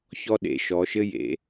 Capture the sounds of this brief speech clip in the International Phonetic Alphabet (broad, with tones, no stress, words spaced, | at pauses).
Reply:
çɔ˦ɗḛ˩˧ʃɔ˩˧ʃɘ˦ jḛ˩˧